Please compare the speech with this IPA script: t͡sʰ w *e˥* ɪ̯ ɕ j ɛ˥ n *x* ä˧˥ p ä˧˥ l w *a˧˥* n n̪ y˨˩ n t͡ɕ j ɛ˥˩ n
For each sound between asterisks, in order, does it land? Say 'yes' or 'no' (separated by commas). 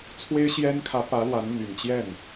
yes, no, yes